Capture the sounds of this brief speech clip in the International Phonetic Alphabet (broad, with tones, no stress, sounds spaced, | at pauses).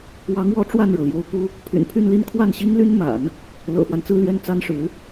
w ɑ˧˥ ŋ w ɔ˧˥ ʈ͡ʂ w a˥˩ n ɻ ɤ˩ l j o˧˥ ʊ̯ k u˥ | pʰ y̰˨˩ n pʰ y˥˧ n l i˥˧ n kʰ w a˥˩ n ɕ i˥ ŋ l y˥ n m a̰˨˩˦ n | l ɤ̰˨˩ f w a˦ n t͡s ɹ̩˥˧ l ɥ ɛ˥˩ n t͡s a˥ n ʂ ɻ̩˧˥